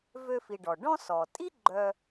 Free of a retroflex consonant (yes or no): no